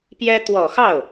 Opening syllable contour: high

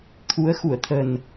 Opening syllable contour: rising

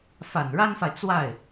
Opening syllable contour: low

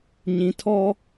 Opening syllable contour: low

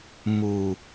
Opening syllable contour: low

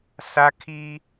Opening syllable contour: high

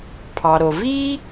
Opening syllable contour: low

